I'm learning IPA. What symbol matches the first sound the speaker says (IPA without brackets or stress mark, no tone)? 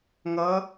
ŋ